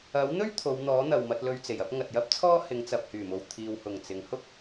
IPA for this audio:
ɐ˨˥ w n̪ ɵ˥ ɥ t̪ʰ o˨˧ w n̪ ɔː˨˥ n̪ ɐ˨ w m ɐ˧ t̚ l ɵ˧ ɥ t͡s e˨˩ j ɐ˥ p̚ ŋ ɐ˨ t̚ j ɐ˥ p̚ t͡sʰ ɔː˥ h ɪ˨˧ ŋ t͡s ɐ˨ p̚ h yː˨˩ m o˨ w t̪ʰ iː˨ w h ʊ˨˩ ŋ t͡s ɪ˨˧ ŋ h ʊ˥ k̚

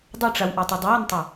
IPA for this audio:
dˤ ɐ ʈ͡ʂ a w ʔ a tˤ a dˤ ə w ʌ n tˤ ʌ

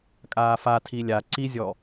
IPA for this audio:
kʼ aː f a tʰ i lʲ a ǀ i zʲ ɔ

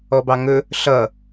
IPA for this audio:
ɔ b ɑ ŋ ɵ | ɬ ʌ

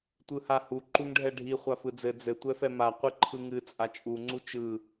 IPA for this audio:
tʷ ɯ h a h u ǃ u ŋ ɖʱ ɛ ɖʱ i χʷ a f ɯ d͡z ɘ d͡z ɘ tʷ ɛ f ɛ m a qʷ i ǃʰ ɯ ŋ ɨ t͡sʼ a t͡ʃʼ u ŋ͡ǀ u t͡ʃ ɯ

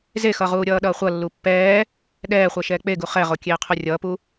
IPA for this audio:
z e x ʌ ʁ uː ɾʲ ʌː ɗ ʌː χʷ ʌ lː u pː ɛː | ɗ ɛː χʷ ɛ ʃ ɛː k͡p e ɡ u χ ɛ ʁ o kʲ eː qʰ u rʲ ʌː p u

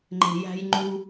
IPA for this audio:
ŋ͡ǃ e̤˨ j æ̤˨ j ŋ͡ǃ u˨

